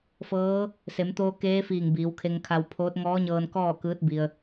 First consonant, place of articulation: labial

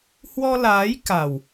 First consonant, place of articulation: glottal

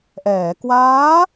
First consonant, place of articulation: glottal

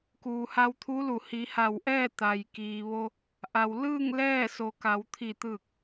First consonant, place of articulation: velar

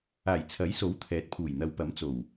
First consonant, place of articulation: palatal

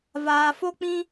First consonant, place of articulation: labial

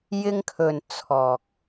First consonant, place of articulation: palatal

